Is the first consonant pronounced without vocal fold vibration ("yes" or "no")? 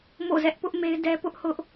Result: no